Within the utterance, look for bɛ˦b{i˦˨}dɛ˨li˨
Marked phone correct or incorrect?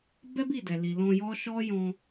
correct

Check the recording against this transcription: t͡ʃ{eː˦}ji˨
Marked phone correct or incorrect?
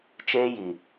correct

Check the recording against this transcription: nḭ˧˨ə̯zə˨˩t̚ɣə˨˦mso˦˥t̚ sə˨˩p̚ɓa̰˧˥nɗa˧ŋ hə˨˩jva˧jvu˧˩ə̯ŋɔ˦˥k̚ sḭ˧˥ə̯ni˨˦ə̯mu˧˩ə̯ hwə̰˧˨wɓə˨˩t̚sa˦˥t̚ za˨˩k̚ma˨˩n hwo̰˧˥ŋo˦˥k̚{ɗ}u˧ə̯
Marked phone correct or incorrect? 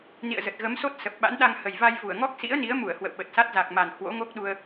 correct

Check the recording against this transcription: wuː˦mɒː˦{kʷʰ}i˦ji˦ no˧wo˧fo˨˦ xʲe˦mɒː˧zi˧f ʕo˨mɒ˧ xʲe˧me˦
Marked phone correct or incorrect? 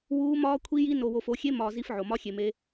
correct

